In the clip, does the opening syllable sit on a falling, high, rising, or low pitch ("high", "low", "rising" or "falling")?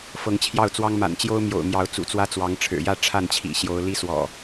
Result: rising